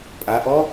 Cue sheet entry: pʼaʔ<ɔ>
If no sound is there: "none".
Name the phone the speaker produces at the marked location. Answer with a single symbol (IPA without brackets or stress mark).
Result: ɔ